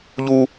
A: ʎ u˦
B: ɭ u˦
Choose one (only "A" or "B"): A